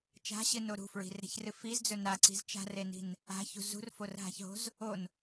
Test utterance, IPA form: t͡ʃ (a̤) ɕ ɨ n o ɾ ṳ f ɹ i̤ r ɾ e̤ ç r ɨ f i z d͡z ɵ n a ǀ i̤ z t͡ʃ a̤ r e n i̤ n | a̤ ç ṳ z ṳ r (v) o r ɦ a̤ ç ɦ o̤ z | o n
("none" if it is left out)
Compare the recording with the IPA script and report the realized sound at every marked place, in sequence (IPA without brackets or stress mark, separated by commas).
a̤, f